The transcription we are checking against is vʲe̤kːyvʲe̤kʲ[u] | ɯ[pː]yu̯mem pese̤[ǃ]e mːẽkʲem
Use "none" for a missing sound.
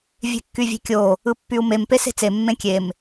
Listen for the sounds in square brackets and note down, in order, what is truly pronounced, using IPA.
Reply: o, pː, t͡s

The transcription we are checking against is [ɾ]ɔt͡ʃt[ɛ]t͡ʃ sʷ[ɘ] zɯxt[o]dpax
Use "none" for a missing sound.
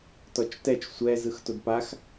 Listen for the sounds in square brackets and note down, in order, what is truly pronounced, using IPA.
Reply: t, ɛ, ɛ, o

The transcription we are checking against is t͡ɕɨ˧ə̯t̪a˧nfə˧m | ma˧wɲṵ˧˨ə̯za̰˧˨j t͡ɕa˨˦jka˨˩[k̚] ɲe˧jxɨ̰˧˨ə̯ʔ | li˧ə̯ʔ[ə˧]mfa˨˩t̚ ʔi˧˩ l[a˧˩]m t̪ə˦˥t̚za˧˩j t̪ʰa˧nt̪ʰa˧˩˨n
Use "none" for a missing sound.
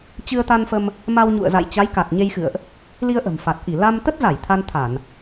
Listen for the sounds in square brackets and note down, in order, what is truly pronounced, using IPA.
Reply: t̚, ə̤˨˩, a˧

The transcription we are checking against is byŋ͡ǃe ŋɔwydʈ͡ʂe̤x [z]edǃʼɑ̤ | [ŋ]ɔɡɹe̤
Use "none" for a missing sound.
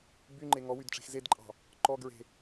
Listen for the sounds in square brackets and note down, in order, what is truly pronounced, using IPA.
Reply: z, ǃ

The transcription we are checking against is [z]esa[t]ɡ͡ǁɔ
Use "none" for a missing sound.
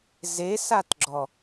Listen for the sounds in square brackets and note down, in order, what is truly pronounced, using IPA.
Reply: z, t

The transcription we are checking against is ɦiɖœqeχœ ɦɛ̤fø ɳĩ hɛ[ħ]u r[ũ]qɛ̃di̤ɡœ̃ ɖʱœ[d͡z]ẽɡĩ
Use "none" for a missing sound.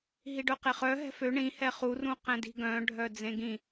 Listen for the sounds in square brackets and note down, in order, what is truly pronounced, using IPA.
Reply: χ, ũ, d͡z

